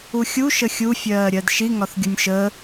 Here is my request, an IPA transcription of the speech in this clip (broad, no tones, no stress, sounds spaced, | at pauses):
u xʲ u ʃ ə xʲ u fʲ ɜː ɾʲ ɜ d ʃ i ŋ ɒ θ ɡʲ u nʲ ʃ ə